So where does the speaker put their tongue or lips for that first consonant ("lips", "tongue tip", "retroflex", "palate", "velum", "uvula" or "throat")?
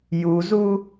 palate